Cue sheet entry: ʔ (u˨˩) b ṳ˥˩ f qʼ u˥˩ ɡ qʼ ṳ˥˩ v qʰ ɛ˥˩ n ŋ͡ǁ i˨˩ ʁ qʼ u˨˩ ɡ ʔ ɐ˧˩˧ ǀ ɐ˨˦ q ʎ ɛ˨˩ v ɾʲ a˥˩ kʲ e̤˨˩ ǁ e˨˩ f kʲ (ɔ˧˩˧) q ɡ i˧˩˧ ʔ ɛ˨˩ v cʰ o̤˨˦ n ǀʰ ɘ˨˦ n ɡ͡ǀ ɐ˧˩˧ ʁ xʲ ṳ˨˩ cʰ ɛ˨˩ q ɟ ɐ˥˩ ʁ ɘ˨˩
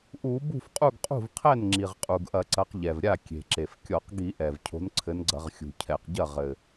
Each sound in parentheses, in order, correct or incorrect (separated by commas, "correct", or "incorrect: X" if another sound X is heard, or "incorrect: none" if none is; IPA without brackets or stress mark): incorrect: u˧˩˧, correct